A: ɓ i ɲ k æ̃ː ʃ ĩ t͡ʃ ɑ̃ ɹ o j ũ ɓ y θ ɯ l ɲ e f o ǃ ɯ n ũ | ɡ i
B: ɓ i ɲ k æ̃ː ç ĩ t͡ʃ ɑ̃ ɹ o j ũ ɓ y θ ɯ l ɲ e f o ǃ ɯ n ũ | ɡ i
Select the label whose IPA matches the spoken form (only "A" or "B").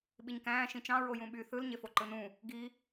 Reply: A